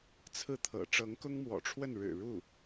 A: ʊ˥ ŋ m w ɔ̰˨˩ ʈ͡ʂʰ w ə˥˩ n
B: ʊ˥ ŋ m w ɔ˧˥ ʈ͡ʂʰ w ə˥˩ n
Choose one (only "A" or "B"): A